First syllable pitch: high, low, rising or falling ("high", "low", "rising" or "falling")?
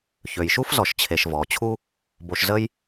low